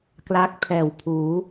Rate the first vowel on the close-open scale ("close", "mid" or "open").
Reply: open